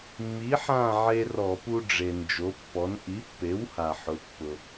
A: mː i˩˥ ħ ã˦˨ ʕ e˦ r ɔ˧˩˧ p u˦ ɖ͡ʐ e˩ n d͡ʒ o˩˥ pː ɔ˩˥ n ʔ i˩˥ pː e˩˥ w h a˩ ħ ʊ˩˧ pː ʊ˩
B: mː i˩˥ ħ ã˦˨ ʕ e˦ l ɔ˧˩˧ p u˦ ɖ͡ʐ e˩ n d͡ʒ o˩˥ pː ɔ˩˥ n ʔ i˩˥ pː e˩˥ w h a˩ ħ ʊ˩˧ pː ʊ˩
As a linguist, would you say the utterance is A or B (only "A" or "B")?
A